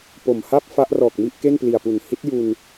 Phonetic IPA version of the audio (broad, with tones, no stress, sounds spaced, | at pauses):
p o˨˩ m h a˥˩ p̚ f a˦˥ ʔ r ɔː˨˩ k̚ m i˥˩ ʔ k e˥˩ n p l i˨˩ a̯ p u˨˩ n h i˦˥ t̚ j u˧ n